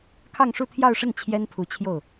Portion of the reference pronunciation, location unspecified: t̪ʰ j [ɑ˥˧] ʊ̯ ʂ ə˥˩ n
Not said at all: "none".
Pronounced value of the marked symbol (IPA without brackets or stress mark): ɑ˥˧